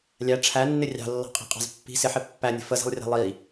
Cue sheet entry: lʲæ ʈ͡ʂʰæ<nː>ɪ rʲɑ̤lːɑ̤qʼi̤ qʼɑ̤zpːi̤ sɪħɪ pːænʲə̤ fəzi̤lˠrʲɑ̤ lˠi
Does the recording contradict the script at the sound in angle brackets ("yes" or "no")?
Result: no